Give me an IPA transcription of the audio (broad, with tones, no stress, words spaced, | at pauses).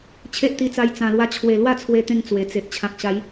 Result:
t͡ɕʰe˦ʔt̪i˧t͡sa˧j t͡sã˨˩lwa˧t͡ɕʰwe˨˩ lwa˥˧t͡sʰwe˧t̪ẽ˧ŋ t͡swe˨˩t͡se˨ʔ t͡ɕʰã˨k̚ɕa˨˦j